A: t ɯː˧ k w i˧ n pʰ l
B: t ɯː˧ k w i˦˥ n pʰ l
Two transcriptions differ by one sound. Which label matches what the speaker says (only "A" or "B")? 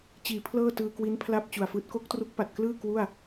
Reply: B